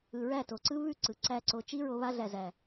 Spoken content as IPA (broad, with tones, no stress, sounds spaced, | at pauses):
ɯ˨ ɹ æ˦˨ t o˨ ǀ ɯ˦ β ʉ˦˨ ǀ ɯ˨ ǀ æ˧ ǀ o˨ t͡ʃ i˦ ɹ o˧ β a˧ ɮ æ˨ z æ˨